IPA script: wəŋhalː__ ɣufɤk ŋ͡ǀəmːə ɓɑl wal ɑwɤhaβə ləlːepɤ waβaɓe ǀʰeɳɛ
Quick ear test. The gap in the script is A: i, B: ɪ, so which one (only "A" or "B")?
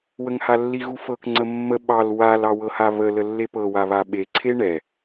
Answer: A